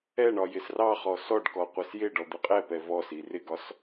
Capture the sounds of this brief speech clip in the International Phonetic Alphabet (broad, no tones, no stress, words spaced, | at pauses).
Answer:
ɛɳɒ jɪsrɑχɔ sɔɖkɔ qʷɛsjɪɖɔ d̪ɪqʼɛpɛ vɔsi rɪɡɒs